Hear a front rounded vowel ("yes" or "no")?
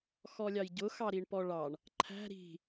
no